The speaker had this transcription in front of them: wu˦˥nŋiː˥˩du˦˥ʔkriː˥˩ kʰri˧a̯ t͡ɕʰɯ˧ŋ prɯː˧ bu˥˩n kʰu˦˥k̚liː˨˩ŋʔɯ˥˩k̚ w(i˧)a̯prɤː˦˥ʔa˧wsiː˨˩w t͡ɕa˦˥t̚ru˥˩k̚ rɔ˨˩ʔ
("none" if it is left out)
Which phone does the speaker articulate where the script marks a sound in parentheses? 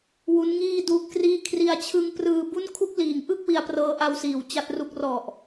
i˧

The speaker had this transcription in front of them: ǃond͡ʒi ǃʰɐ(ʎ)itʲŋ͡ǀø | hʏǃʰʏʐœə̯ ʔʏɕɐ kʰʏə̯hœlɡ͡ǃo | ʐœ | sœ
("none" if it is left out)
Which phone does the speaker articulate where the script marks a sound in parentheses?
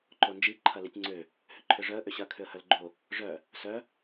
l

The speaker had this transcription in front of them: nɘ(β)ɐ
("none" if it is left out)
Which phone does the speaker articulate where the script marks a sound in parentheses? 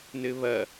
β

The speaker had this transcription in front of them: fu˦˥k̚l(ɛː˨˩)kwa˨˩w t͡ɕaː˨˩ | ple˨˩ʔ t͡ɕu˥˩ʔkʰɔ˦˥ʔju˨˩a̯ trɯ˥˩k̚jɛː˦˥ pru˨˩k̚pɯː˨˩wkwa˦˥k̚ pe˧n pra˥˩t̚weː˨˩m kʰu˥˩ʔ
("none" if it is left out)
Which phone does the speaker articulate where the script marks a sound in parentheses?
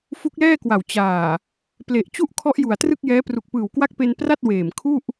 ɛː˥˩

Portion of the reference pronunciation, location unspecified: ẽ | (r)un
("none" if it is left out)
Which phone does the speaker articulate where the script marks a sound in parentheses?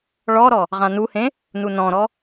n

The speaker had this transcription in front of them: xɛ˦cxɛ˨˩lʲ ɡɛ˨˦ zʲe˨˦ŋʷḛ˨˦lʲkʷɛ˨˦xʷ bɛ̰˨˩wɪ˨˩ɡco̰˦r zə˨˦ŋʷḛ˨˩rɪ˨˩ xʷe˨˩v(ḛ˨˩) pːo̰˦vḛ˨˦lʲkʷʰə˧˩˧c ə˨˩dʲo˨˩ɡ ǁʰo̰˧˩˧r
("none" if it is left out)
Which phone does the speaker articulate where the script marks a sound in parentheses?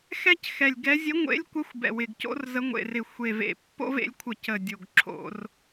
ḛ˨˩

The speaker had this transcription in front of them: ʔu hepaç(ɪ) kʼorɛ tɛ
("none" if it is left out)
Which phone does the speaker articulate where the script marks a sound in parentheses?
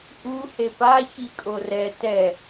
i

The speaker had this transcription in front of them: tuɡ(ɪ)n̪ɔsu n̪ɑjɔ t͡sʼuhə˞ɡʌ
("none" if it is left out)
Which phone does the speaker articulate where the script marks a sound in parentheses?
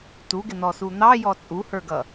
ɪ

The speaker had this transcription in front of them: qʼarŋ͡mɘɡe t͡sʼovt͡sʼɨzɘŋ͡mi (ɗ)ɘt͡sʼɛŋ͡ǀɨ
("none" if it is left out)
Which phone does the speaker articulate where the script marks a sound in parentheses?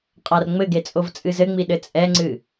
ɗ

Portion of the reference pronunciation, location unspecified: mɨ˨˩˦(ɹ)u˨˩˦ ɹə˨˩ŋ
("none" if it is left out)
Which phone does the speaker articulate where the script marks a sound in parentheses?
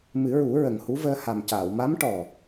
ɹ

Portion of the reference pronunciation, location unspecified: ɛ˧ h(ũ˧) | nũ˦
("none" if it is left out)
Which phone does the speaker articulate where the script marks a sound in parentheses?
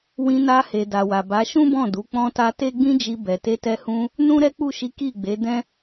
ũ˧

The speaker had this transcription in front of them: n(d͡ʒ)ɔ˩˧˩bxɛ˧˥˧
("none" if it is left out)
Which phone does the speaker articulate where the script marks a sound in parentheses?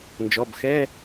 d͡ʒ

